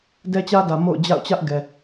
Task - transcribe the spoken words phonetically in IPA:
d ɛ˦ t͡ɕ ä˦ d ä˨ m o̰˦˨ ʊ̯ d͡ʑ a̰˦˨ ʊ̯ t͡ɕ ä˦ ʔ ɡ ɛ˨

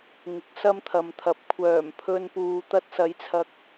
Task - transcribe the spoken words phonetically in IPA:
ŋ ɪ˨˥ k̚ s ɐ˥ m t̪ʰ ɐ˨ m t̪ʰ ɐ˨˥ p̚ kʷʰ œː˨˩ m pʰ ɵ˧ n p uː˨ t̪ ɐ˧ t̚ s ɐ˨˥ j t͡sʰ ɐ˨ k̚

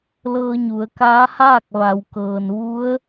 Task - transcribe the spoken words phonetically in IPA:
l ɤː˧ ɲ u˩˧ ə̯ k aː˧˥ h aː˥˨ k̚ ʋ a˩˧ w k ɤː˩ n ʋ u˧˥ ə̯

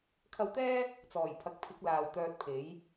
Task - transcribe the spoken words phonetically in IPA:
kʰ ɐ˧ w t̪ ɛː˥ | t͡s ɔː˨˩ j pʰ ɐ˨˥ k̚ pʰ ɪ˨˥ k̚ l aː˨ w t̪ œː˧ t̚ pʰ e˨˥ j

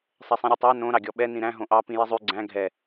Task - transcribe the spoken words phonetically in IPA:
sˤ ɛ sˤ ĩ ɾʲ ʉ tˤ ɑ n õ ɾ ɑ ɡʲ ɔ ɓ ɛ n ĩ ɾ æ̃ ɦ õ ʔ ɑ p ĩ j i zˤ ʉ ɡ͡ǀ æ̃ ɡʱ ɛ

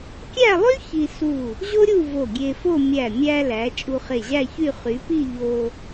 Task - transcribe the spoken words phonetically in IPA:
kʲ æ˥˧ lˠ y˥ ç i˧ s u˧˩ | ʑ o˥ ɾʲ u˥˧ v o˧˩ ɡʲ e˧ f o˥˧ mʲ æ˧˩ mʲ æ˧ l æ˩˧ t͡ʃʼ u˧ χ e˧˩ ʑ æ˥˧ ç y˥˧ χ y˩˧ p i˥˧ ʎ o˧

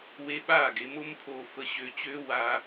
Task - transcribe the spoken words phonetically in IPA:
w e˧ ɓ aː˦˨ ɡ e˧ m o˦ m pʰ oː˧ f ə˧ ɕ ø˧ t͡ɕ øː˦ w aː˧

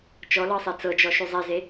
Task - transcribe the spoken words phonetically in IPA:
t͡ʃ ɔ l ɤ sˤ e t͡s ɤ d͡ʒ ɔ ʃ u zˤ e z e

